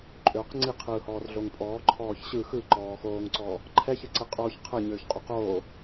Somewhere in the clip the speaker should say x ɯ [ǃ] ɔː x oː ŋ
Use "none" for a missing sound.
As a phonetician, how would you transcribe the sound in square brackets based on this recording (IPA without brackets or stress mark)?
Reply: ǃ